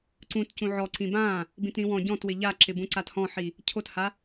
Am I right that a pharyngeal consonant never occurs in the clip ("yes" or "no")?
no